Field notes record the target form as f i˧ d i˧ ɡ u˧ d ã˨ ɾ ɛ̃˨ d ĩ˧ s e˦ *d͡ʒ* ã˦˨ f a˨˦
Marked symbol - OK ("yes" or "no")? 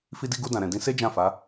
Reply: yes